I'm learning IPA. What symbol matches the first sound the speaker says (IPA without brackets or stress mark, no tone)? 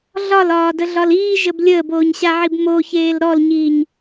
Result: ɮ